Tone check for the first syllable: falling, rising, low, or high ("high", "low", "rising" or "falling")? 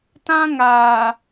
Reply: high